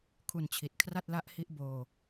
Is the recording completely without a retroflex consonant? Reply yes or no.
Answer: yes